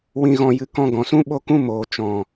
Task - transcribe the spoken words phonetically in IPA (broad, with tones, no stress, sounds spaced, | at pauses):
w ĩ˧ ɣ ɔ̃˧ j ɨ˧ k ɔ̃˧ ɡ ɔ̃˨ s ũ˦ ɓ o˦ k ũ˦ m oː˨ t͡ʃ ɔ̃˨